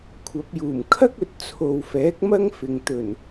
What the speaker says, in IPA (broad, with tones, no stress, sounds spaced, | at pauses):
kʷʰ ɐ˨˥ p̚ j uː˨˩ m kʰ ɐ˥ k̚ ɵ˨ t̚ t͡sʰ o˨ w f ɛː˨˥ k̚ m ɐ˥ ŋ f ɪ˨ ŋ t̪ ɵ˨˩ n